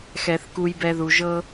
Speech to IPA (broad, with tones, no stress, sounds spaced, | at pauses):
x ɛ˨ θ k u˦ j b ɛ˦ ð u˨ ʒ ɤ˦